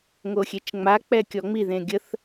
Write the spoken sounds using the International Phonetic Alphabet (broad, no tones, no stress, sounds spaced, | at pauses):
ŋ o xʲ e t͡ʃ ŋ͡m a k͡p ɛ kʲ ɔ ŋ͡m i ð ẽ ɡʲ ə θ